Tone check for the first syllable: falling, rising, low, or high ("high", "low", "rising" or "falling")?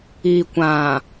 low